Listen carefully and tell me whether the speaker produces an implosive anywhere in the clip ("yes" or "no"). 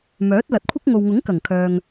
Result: no